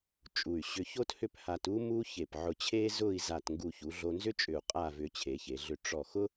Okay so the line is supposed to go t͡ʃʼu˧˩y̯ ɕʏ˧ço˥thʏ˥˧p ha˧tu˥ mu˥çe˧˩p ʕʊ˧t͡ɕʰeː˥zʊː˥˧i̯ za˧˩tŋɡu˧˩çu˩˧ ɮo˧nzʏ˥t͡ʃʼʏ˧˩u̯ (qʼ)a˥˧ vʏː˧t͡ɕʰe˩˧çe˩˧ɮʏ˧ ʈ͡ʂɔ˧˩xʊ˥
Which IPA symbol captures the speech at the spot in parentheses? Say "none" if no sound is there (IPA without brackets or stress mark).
qʼ